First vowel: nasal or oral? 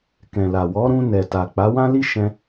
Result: nasal